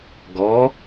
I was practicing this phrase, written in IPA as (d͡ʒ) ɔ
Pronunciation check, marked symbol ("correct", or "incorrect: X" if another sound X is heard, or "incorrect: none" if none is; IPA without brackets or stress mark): incorrect: ɡ